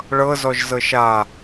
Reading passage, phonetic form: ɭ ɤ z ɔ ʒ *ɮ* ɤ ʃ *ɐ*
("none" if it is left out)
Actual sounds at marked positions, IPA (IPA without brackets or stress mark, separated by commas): z, a